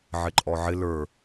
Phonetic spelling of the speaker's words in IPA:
ʕ ɪ ǃʼ ɔ ʕ ɪ l ə˞

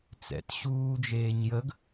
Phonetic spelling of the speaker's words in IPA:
t͡s ɛ̰ t ɕ uː d͡ʒ eː ɲ j ə ɡ

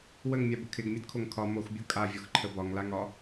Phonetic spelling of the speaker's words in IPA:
w ə ŋ mʲ a b ə kʰ ɪ ɡ mʲ ə d kʰ o ŋ kʰ ɒ m o x bʲ o kʼ a vʲ ɒ x ǃʰ ə b ɒ ŋ l a ŋ ɒ

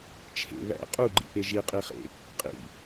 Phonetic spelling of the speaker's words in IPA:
t͡ʃʰ ḛ β æ̰ qʼ u ɡ͡ǃ ḭ p e ʒ i qʼ i χ ḛ | qʼ ḭ

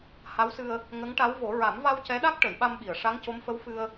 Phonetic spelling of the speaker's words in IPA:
h a˧˥ w s ɨ˧ ə̯ | ŋ ə˧˥ ŋ ʈ a˧˥ w v o˨˩˦ ɹ a˨˩˦ m v a˧ w c ɛ˧˥ ɗ a˦˥ k̚ ʈ ə˨˩˨ j ɓ a˧ m ɓ i˨˩˨ ə̯ ʂ a˧˥ ŋ c o˧˥ m f ə˧˥ w f ɨ˧ ə̯

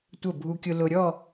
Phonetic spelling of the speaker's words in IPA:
tʷ ə˧˩ bʱ u˧ kʲ ʊ˧ l ʊ˧ ɾʲ ɔ˥˧

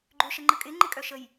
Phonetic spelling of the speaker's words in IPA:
ɡ͡ǃ ø ʃ ə ŋ͡ǃ ə kʼ ɪ ŋ͡ǃ ɪ kʼ œ ʃ ə j

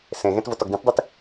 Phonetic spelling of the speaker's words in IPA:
s ẽ ɣ ẽ t v o t ɔ ɡ d ĩ t dˤ i t

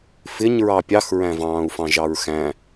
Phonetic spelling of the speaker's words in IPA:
f ɪ ɲ ɹ ɑ pʲ ɑ x ɹ æ̃ v ɑ̃ː u̯ f ɑ̃ ʒ ɑ ɹ x æ̃

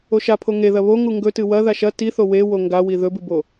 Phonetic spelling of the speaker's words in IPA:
o ʃ a pʰ o ŋ e ð ɐ β o ŋ u ŋ ɡ ɵ t ɨ w ɐ ð a ʃ ɐ t i θ o w e w o ŋ ɡ a w i ð ɵ b ɨ b o

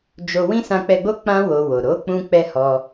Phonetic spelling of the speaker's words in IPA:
d͡ʒ o˧ w ĩ˦ s ã˧ k͡p ɛ˧ ɡ͡b o˦ k͡p ã˦ w o˧ w o˨ ɾ o˨˦ k͡p ũ˧ k͡p ɛ˧ h ɔ˧

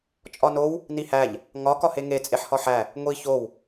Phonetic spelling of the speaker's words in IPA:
t͡ʃʼ ɒ n o w | n i h æ ʎ | ŋ ɒ k ɒ h e ŋ e t͡sʼ e ħ h ɒ ħ æ | ŋʷ i ç o w

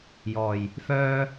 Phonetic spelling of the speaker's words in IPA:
j ɔː˨˩ j | f œː˥

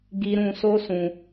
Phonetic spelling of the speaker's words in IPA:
ɡ i˧ ɾ ũ˧ s o˦ s ũ˧

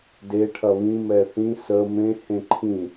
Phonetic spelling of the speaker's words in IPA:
d e ʈʰ ɐ β ĩ m ɛ θ ĩ s ə m ẽ h ẽ ǃʰ ĩ

